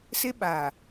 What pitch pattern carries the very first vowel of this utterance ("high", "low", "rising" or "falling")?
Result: high